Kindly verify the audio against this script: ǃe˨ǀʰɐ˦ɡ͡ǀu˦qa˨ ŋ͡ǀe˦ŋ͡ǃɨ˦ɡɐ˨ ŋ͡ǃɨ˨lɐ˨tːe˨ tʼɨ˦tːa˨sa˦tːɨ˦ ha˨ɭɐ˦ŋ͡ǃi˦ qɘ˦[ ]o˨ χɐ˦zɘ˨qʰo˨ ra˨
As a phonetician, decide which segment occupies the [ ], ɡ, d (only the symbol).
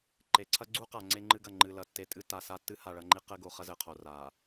ɡ